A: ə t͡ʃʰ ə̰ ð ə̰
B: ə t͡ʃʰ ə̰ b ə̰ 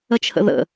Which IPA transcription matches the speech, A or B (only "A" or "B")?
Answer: A